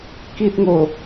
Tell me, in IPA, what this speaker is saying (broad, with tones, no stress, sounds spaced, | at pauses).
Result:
k i˨ t̚ ŋ o˨˩